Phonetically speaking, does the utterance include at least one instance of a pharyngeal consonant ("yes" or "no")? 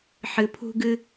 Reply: yes